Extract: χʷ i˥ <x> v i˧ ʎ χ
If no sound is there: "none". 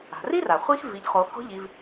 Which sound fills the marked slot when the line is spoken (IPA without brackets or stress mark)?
x